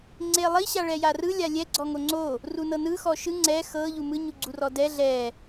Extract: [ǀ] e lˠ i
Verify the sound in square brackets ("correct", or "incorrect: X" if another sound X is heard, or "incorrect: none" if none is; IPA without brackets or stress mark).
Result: incorrect: ŋ͡ǀ